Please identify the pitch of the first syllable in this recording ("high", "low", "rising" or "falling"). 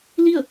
falling